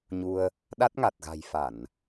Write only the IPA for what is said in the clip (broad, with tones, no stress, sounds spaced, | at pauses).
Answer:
ɲ u˧ ə̯ | ɗ a˦˥ t̚ ŋ a˨˩ t̚ ɣ a̤˨˩ j f a˧˩˨ n